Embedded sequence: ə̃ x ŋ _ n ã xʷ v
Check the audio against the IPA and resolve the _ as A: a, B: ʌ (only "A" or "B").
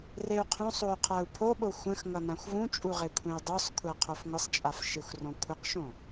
B